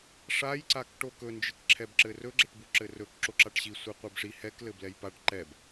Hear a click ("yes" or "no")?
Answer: yes